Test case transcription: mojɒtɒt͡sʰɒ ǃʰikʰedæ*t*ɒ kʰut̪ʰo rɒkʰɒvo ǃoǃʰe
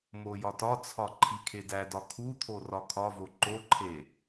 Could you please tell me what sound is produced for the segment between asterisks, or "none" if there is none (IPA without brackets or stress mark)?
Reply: d